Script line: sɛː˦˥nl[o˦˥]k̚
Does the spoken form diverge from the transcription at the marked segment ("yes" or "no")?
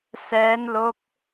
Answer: no